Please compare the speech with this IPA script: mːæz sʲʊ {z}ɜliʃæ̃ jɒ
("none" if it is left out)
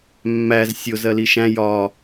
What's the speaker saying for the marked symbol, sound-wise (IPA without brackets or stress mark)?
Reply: z